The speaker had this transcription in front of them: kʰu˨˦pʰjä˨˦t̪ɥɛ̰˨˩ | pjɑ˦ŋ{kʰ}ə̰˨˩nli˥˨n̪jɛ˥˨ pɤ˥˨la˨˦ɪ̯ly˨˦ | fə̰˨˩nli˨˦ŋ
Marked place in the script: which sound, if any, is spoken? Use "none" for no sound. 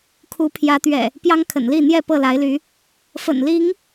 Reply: kʰ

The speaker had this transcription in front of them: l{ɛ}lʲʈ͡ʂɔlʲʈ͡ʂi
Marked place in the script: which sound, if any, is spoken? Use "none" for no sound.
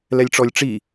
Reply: ɛ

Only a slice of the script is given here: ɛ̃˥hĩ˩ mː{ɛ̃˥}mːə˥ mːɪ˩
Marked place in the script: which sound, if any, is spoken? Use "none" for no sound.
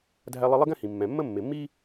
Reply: ɛ̃˩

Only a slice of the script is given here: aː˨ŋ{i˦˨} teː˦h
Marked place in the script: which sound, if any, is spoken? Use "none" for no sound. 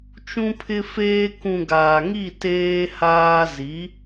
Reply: i˦˨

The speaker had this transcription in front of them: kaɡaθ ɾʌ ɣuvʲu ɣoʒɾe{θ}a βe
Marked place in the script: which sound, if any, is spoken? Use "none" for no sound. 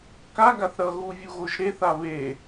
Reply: θ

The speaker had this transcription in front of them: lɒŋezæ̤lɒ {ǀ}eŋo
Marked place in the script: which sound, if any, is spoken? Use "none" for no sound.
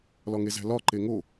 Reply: ǃ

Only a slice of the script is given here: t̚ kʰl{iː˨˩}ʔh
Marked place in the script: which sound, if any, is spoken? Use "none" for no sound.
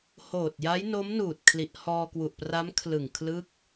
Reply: i˨˩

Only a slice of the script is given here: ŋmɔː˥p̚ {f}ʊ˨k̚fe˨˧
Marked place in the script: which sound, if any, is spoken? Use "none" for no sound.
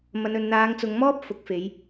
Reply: f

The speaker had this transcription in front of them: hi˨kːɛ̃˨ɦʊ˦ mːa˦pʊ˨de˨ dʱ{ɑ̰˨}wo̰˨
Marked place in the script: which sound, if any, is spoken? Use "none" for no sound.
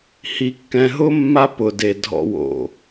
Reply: ɔ̰˨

